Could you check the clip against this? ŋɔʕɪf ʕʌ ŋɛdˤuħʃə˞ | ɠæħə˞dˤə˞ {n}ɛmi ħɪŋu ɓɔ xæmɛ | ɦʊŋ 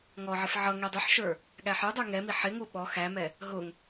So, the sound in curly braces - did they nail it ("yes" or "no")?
no